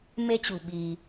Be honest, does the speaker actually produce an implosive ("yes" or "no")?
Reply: yes